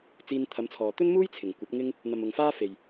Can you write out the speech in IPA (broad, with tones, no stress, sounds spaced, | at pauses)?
t͡s iː˧ n t̪ʰ ɐ˨˧ m t͡sʰ ɔː˨ t̪ ɵ˥ n m uː˥ j t͡sʰ ɪ˨˩ ŋ kʷ ɐ˨˥ p̚ ŋ ɪ˥ ŋ | n̪ ɐ˨ m ʊ˨ ŋ f aː˥ f e˨ j